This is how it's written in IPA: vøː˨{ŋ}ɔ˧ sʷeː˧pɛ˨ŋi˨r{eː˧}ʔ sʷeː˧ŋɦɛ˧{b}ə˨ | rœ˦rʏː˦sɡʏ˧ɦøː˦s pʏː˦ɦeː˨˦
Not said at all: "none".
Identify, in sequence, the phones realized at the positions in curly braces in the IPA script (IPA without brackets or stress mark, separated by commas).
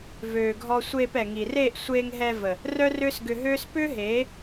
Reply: ɡʱ, eː˦˨, v